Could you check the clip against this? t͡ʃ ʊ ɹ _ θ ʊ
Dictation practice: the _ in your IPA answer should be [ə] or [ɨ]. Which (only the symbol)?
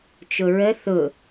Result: ə